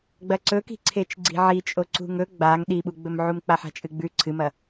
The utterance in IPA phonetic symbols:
ɡ͡bɐǀɵki̤ ǀʰet͡ʃɡ͡ǀi̤ʕi t͡ʃʼoǀṳŋɵ ɡ͡baŋ ɗiɓuɡ͡bɵmʕum k͡paħa̤t͡ʃʼɨɡ͡bʉ ǀʰɨmɐ

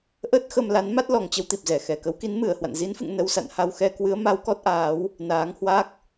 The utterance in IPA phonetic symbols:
ʔə˦˥t̚xə˧m la˨˦nma˦˥t̚lɔ˨˩ŋt͡ɕə˧w t̪i˨˩p̚zɛ˧˩xɛ˨˩ kə˨˦wki˨˦nmɨ˧˩ə̯hwa̰˧˨n zi˨˦nfɨ̰˧˨ŋ nə˧wsa̰˧˨nha˧wxɛ˧ kwɨ˨˦ə̯ ma˨˦wkɔ˦˥t̚ʔaː˨˦w | naː˨˦ŋhwa˦˥k̚

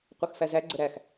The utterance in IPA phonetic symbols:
qʷɤxfæzæ ɡ͡ǀəɾæx

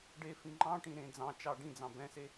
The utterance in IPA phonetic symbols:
ɖe fĩŋ͡ǃɑ̃ʈĩ ɾẽ d͡zɑ̃t͡ʃɑ ɖĩd͡zɑ̃ bɛ̃se

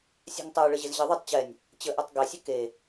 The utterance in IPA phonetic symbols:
sʲæ̤ŋtˤæ ɭəʑɘzʑɘðˤetˤ t͡ɕɛnʲ | t͡ɕəʔɛtˤ ɡɛsʲə ke

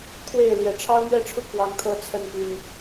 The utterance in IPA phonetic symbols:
kʰwe˥˨ɪ̯ ljɛ˨˩ʈ͡ʂʰɑ˦ʊ̯n̪ɥɛ˥˨ʈ͡ʂʰu˦ kwɑ˦ŋt̪ʰɤ˦ t͡sʰə˥˨npy˨˩n

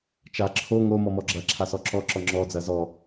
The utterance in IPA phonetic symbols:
t͡ʃa ǁʰo ŋo mɔmɔɡ͡ǁɐ ǁʰasɔǁɔ ǁɔŋ͡ǁɔ d͡zɐzɔ

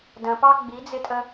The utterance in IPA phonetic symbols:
də̃pɑ ɡ͡bid͡zɪtʼə

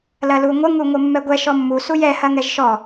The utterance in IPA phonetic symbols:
lɐluŋʷə ŋuŋʷəmːɛɡʷɛ ʃɔmːu sujɛ hɐŋɛʒʃɔ

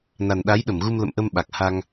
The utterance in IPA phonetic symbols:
na˨˩nɗa˨˦jɗə˧˩mɣu˧m lə̰˧˨mʔə˧m ɓa˨˩k̚ha˧ŋ

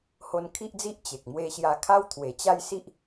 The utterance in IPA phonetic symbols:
ho˧nkʰi˦ʔd͡zi˦ʔ t͡ɕe˨k̚ mwe˧ɕja˧ kʰa˦wt̪ʰwe˨˩t͡ɕa˥˧jsi˦ʔ

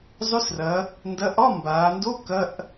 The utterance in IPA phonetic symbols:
zˤɵ˧˥˧srɐ˩˧ | ndɐ˧˥˧ ʔɒ˧˥˧mbaː˩˧ndo˧˥˧ kɐ˧˥˧ʔ

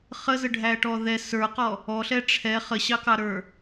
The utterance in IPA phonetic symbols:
χəzəɖʱæʈɔ ðɛ sə˞qɔ | ɔɬɛ ʈ͡ʂʰɛ χəɕɑkɑɾə˞

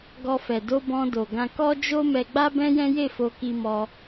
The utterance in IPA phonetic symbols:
ɡɔ˧fɛ˨ do˧bɔ̃˧ do˨ɡã˧kɔ˦d͡ʒo˦ mɛ˧ɡ͡ba˦bɛ̃˦jɛ̃˦ je˦˨fo˧ki˧mɔ˧

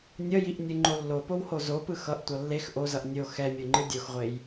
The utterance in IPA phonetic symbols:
nʲʌjiʔnʲɯŋ͡ǃo lːopowho zopɯ xʌʔtʷʌ lːex ʔozʌʔ nʲo xɛmʲoŋ͡ǃɯ dʲoxʁʷej

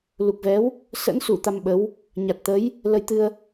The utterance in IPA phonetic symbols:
lu˨˩k̚vɛ˨˦w | sə̰˧˥nsu˧˩ t̪a˧mɓə˨˦w | ɲa˨˩t̚ t̪ə˨˦j | lə˧jt̪ɨ˧ə̯

